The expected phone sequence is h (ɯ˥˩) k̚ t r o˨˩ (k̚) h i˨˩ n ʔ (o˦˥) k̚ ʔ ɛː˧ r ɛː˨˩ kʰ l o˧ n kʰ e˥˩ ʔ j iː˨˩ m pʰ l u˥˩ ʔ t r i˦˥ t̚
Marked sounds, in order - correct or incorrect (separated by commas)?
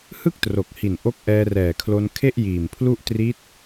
correct, correct, correct